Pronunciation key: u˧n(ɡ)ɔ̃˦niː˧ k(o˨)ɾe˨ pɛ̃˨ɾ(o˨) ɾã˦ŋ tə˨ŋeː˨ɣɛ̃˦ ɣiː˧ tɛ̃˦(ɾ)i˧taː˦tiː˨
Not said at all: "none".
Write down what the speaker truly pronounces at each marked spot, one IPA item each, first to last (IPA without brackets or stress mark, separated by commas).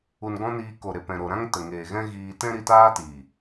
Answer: ɡ, o˨, o˨, ɾ